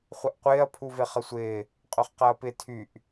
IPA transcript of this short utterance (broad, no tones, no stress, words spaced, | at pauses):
χʷɪʔqʷɪːɐ̯ pʰuveχəsʷɪː | qʼøχqɐːpɪ tʰyʔ